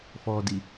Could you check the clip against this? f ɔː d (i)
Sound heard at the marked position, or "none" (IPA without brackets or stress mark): i